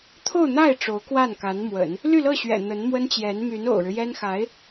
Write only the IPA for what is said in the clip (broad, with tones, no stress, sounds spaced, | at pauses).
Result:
t̪ʰ o˥˧ ʊ̯ n̪ a˥˩ ɪ̯ ʈ͡ʂ o˧˥ ʊ̯ k w a˥˩ n k a˧˥ n m w ə̰˨˩˦ n | l y˥˧ l ɤ˥˩ ɕ ɥ ɛ̰˨˩ n̪ ə˧˥ n m w ə˥ n t͡ɕ j ɛ˧˥ n m y˧˥ n o̰˨˩ ʊ̯ ɻ ɻ̩˦ j ɛ˥ n x a˧˥ ɪ̯